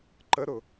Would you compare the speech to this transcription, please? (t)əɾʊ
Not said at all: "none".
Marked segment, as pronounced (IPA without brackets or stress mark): ǃ